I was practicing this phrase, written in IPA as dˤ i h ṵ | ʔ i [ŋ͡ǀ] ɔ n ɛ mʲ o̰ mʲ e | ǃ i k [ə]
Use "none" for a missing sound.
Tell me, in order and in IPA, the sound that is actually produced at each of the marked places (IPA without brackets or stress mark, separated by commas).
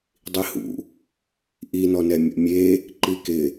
n, ɪ